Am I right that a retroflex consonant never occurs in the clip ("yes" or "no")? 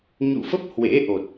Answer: yes